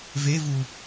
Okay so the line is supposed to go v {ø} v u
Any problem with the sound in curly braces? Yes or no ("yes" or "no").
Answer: yes